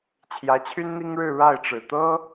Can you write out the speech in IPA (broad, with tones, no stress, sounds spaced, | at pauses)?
t͡ɕʰ j ä˧˥ t͡ɕʰ y˥ n n̪ i˥ ŋ ɻ ɻ̩˥˧ ɻ a˥˩ ɪ̯ ʈ͡ʂ ɻ̩˨˩ t̪ ɤ˥